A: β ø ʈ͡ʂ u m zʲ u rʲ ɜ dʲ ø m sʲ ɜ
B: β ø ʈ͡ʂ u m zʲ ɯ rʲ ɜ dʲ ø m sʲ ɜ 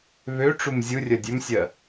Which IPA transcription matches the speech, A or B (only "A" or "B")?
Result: B